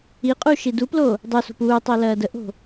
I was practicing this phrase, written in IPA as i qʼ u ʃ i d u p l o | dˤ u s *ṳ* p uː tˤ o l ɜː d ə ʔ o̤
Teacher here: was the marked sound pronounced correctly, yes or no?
no